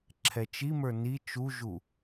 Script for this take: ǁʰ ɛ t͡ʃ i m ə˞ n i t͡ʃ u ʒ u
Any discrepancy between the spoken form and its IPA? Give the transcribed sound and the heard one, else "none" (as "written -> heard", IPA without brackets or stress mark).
none